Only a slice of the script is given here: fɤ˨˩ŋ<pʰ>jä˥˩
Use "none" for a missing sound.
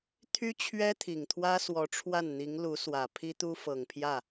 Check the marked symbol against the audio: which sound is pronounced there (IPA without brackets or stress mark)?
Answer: pʰ